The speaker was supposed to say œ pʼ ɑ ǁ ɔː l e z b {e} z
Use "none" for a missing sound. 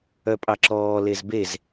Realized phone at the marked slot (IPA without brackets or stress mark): e